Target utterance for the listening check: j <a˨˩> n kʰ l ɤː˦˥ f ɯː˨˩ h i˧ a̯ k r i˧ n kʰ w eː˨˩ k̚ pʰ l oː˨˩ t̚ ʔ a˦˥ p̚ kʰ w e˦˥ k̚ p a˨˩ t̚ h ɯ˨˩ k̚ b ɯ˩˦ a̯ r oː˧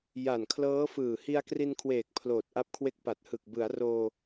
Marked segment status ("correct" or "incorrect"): correct